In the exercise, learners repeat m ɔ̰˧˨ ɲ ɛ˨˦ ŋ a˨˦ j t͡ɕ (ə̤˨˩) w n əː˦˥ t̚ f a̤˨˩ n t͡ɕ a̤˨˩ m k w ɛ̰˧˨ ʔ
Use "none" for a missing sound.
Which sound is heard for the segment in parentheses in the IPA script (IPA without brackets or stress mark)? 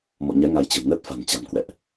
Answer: ə̤˨˩